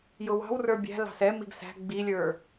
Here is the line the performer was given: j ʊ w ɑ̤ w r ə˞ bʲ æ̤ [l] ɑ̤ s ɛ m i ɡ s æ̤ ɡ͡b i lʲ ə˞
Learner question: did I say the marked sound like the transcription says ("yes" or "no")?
yes